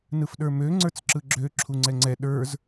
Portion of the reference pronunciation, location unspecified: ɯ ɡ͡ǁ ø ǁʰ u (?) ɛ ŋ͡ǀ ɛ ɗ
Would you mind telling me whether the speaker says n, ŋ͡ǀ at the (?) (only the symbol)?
ŋ͡ǀ